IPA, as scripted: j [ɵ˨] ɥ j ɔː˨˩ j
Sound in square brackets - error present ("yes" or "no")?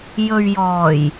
no